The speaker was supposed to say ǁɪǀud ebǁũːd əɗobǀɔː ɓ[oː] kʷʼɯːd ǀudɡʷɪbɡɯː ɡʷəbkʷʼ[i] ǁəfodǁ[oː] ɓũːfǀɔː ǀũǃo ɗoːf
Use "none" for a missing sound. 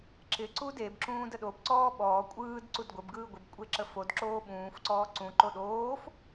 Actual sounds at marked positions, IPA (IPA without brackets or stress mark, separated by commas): ɔː, e, oː